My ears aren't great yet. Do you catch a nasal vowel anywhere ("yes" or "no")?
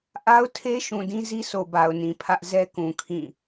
yes